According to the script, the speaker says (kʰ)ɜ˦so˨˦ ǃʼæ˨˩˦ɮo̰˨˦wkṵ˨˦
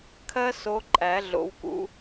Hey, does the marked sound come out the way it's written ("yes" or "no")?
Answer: yes